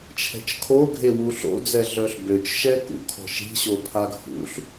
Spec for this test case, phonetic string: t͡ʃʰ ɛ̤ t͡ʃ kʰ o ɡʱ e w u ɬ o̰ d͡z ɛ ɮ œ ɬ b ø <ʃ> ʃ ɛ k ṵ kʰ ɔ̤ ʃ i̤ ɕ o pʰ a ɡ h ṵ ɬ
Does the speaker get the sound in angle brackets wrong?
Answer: yes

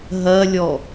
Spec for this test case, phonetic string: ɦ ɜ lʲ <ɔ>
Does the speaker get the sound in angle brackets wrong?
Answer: no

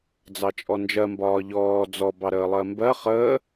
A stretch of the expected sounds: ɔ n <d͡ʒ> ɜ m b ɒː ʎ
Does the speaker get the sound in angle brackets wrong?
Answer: no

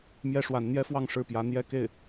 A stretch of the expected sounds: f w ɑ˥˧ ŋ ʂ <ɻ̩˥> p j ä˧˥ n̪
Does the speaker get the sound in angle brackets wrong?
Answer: yes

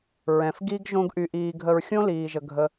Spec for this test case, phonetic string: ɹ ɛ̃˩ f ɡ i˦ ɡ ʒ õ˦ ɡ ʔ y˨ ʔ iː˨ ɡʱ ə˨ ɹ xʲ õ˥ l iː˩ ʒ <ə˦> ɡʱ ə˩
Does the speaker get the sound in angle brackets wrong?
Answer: yes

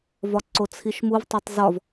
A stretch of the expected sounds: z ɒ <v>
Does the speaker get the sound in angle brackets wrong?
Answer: no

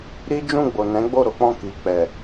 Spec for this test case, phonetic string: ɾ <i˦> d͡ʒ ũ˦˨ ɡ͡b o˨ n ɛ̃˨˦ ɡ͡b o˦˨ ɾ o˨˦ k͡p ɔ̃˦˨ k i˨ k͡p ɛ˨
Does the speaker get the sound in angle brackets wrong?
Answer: no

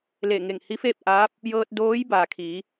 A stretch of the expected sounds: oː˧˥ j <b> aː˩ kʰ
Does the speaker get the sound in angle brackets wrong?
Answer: no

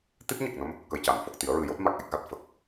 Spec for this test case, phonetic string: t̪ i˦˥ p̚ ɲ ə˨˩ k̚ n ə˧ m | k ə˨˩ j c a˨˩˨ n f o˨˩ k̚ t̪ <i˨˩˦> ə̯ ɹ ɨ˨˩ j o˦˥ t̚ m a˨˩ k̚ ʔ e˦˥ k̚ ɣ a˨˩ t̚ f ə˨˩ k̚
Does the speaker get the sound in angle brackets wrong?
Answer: no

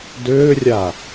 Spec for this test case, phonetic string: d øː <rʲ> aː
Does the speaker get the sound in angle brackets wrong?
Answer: no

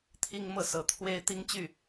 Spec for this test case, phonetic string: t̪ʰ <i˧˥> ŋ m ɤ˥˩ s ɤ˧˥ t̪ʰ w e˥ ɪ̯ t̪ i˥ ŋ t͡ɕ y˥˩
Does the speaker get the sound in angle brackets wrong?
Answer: yes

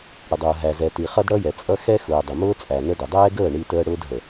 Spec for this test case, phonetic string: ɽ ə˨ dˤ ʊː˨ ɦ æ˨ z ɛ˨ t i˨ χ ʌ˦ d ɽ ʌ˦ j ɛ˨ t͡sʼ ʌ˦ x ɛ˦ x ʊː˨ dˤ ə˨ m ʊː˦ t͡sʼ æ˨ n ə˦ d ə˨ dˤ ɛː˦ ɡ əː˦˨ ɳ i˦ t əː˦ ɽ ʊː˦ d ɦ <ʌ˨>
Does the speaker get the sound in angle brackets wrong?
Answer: yes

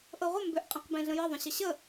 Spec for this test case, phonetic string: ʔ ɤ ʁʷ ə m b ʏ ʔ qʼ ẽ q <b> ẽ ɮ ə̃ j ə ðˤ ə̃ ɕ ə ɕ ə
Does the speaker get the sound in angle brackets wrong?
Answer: no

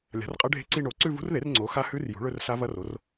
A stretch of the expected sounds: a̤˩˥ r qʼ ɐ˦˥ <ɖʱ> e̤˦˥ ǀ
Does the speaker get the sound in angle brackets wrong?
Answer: no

